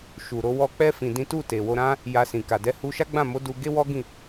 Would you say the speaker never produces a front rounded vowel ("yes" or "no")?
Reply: yes